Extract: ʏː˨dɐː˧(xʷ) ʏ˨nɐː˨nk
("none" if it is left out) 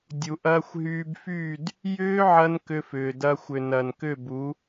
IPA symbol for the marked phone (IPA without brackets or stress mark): xʷ